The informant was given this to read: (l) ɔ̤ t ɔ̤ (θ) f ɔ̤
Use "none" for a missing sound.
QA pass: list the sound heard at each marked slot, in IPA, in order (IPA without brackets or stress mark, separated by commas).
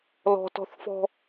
l, θ